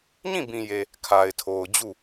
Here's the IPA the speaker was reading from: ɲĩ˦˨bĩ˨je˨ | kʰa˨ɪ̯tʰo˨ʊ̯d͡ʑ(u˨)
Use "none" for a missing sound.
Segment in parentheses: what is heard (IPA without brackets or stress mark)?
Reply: u˦˨